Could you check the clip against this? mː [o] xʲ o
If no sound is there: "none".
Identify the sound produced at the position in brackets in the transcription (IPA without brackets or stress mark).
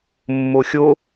o